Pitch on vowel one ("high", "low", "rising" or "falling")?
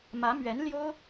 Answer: rising